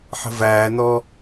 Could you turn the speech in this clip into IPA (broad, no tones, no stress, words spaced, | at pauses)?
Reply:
ħə̤væːnɔː